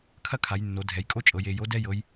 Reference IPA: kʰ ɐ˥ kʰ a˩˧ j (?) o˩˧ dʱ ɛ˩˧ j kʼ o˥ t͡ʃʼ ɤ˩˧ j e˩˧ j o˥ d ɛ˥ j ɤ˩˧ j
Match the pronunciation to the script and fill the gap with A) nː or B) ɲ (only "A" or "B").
A